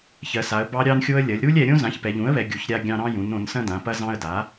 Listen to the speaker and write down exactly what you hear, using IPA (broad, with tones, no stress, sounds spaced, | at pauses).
ç ɜ˩˧ s a˩˧ ə̯ b ɑ˦ ɾʲ ɑ˦ n xʲ o˦ ə̯ lʲ ɐ˩˧ lʲ ɾ u˦ lʲ ɛ˩˧ ɾʲ õ˦ z ã˩˥ ç p ɛ˩˧ ʎ ũ˩˥ ə̯ β ɛ˩˧ ɡʲ u˩˥ ç ɾʲ a˦ ɡʲ ɑ̃˦ ɾ ɑ̃˦ j ũ˩˧ n õ˩˧ n s ɐ̃˦ d ã˩˧ p ɐ˦ z ɑ̃˦ ə̯ d a˩˥